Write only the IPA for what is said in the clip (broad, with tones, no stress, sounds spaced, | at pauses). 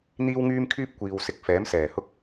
n̪ iː˥ w ŋ yː˥ m kʰ yː˥ p̚ kʷ iː˨ w s ɪ˧ k̚ f ɛː˨˥ m s ɛː˨˩ h ʊ˥ k̚